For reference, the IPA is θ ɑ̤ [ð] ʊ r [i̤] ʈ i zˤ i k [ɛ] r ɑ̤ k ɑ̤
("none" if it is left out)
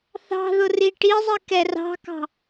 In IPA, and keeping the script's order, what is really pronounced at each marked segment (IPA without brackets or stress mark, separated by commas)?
ð, i, ɛ